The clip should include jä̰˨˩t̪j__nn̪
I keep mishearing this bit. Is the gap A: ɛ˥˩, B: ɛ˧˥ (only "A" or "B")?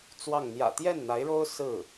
A